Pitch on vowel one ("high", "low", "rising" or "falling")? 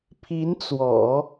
rising